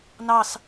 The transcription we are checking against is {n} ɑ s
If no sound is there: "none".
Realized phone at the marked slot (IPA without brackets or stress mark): n